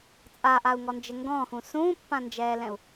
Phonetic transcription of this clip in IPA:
t͡sʼ a ʔ a u̯ ŋ ɔ n d͡ʒ ɘ ŋ ɡ ɔ̃ː x ũ s ũː pː ã n d͡ʒ ɛː l ɛ̃ u̯

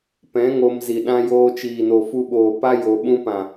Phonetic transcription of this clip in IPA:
p ɛ̃˨˦ ŋ o˧ m z i˨ ɗ ã˧ j oː˧ t͡ʃ iː˨ n o˨ f u˧ ɓ oː˨ p a˦ j o˧ ɓ ũ˦ p ã˨

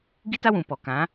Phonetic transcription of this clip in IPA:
ɡ i˦ t a˦ w ũ˨ p ɔ˨ k ã˨˦

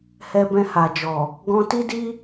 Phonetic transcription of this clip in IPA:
h ɛ˧ b ɛ̃˧ h a˨ d͡ʒ ɔ˨ | ɡ ɔ̃˧ t i˦ d i˦

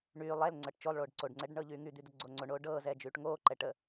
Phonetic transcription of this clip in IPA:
ɳ yː lˠ ɛ l ŋ͡ǀ ɤ ʈ t͡ʃ o lˠ ɭ oː ɖ ǀ o ɖ ŋ͡ǀ ɛ ɖ ɳ ɤː ʎ yː ŋ y d̪ y d̪ ə ɡ͡ǀ o ŋ͡ǀ o ɳ oː ɖ ɤː z ɛː d͡ʒ yː ʈ ŋ oː ǃ ɛ ʈ ə

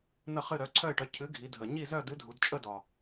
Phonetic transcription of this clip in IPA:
n̪ ə˥˨ χ ɨ˥˨ ɾ œ˨˥ ǀʰ œ˥˨ ɪ̯ ʈ œ˨˥ cʰ ɨ˨˥ ɡʱ i˩˧ dʱ ə˨˩ ɲ i˥˨ z œ˥˨ d ɨ˨˥ dʱ u˩˧ d t͡ʃʼ ə˥˨ d ɒ˨˩

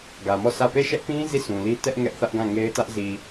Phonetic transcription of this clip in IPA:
ɡ ä˨ m ɔ˦˨ s ä˦˨ p e˦˨ ʃ ɛ˦ ʔ p ĩ˦ z i˦˨ s ũ˨ l i˦ t ɛ˦ ʔ ŋ ɛ˦ ʔ θ ä˦ ʔ ɡ ã˦˨ ŋ e˦ ɪ̯ t ä˦ ʔ z i˨

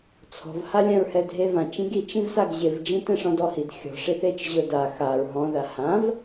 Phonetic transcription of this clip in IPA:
t͡sʰ ɔ̤ v h a lʲ ã ɹ h ɛ dʱ e v ã t͡ʃ ĩ ɡ i t͡ʃ ĩ v s a ɡ ʑ ɪ v d͡ʒ ĩ t ɛ̃ ʂ ɔ̃ d ɔ h i d xʲ ɔ̤ ʂ i θ e t͡ʃ ʑ ʊ d a x a ɹ ɦ ɔ̃ ð a h ã v

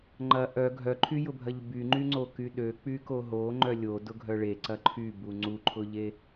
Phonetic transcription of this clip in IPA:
ŋ͡ǃ ɐ ʔ œ ɡʱ œ ǃʰ y j ʊ bʱ ɐ ʎ b y ŋ͡ǃ y ŋ͡ǀ o k y ɗ ø k͡p y k o ɦ o ŋ͡ǃ œ lʲ o d ʊ ɡʱ œ ɭ e ǀ ɐ ǃʰ y b u ŋ͡ǀ u ǃʰ ʊ ʎ e

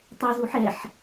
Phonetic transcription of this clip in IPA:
tˤ ɛ z u ħ ɛ ħ

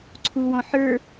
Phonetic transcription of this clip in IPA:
ǀʰ u w ɔ̃ ħ ə˞

